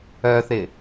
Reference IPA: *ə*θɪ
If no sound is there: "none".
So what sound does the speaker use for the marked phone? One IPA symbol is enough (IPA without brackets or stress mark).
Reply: œ